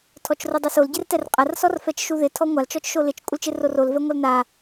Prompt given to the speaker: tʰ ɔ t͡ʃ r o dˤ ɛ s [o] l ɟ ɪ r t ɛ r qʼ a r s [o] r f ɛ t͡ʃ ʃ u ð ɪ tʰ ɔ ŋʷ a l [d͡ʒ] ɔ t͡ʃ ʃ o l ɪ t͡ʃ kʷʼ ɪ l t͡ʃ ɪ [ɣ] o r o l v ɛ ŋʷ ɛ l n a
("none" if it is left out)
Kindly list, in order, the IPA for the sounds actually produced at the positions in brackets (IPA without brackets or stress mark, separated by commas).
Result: o, ɔ, t͡ʃ, r